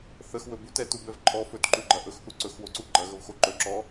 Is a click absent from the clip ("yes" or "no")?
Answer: no